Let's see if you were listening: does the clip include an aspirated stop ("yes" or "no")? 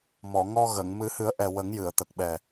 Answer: no